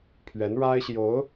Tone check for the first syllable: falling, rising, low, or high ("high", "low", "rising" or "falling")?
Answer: rising